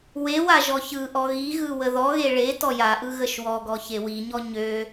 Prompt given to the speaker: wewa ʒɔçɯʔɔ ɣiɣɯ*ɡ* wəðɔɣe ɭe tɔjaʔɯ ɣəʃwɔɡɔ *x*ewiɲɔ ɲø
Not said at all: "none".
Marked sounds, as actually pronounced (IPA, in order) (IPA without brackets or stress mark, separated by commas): none, ç